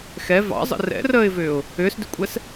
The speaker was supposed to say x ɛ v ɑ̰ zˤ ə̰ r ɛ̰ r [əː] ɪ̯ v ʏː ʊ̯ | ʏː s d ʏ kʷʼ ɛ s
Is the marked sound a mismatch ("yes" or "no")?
no